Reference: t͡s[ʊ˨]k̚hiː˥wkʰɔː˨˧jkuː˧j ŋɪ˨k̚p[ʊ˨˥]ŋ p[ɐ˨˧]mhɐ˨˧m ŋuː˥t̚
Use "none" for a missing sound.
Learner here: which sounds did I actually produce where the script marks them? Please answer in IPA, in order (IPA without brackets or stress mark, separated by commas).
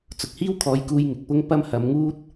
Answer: ʊ˨, ʊ˥, ɐ˥